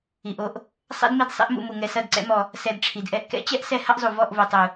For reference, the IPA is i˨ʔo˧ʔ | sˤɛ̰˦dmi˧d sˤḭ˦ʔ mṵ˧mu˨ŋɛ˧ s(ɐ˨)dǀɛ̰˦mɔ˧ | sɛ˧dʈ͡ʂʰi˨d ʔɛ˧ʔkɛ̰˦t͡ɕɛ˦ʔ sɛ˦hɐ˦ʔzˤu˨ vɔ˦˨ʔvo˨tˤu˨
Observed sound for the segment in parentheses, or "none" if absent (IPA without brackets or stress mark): ɐ˦˨